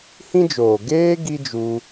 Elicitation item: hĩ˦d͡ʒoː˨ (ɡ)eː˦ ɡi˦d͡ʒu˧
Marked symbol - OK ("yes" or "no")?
yes